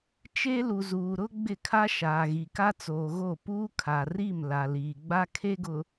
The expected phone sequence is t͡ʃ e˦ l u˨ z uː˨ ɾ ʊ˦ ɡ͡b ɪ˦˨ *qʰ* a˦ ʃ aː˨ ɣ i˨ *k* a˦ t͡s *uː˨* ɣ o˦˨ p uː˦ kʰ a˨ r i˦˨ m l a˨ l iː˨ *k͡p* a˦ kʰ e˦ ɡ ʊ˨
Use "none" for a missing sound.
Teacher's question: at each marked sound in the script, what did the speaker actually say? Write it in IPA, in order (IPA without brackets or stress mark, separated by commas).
kʰ, k, oː˨, ɡ͡b